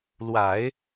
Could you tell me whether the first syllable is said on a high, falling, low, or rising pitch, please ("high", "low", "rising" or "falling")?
low